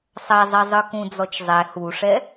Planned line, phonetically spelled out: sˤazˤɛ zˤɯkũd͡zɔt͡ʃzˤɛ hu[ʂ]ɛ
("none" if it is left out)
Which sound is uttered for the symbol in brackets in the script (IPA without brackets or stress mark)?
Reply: ʂ